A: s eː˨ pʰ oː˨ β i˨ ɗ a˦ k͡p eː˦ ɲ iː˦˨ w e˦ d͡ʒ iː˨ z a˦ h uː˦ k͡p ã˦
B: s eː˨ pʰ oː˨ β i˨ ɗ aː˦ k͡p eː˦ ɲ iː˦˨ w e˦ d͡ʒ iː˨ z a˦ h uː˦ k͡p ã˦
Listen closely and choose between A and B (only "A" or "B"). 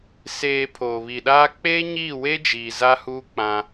B